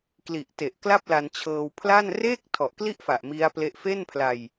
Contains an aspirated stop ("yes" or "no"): yes